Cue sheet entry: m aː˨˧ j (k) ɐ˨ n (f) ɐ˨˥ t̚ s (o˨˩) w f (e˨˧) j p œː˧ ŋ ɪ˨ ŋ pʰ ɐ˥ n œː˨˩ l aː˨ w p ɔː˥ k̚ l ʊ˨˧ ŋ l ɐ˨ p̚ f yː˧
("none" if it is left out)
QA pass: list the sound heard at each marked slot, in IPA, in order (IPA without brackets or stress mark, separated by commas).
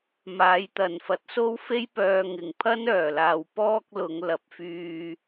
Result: t̪, f, o˥, e˥